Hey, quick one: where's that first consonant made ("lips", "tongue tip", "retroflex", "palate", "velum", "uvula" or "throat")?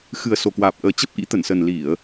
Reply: velum